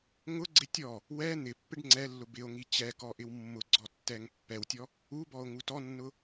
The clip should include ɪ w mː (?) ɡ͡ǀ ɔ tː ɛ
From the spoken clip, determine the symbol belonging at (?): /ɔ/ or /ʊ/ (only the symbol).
ʊ